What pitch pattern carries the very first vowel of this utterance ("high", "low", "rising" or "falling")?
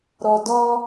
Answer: low